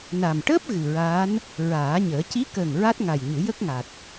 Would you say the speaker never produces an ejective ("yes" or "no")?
yes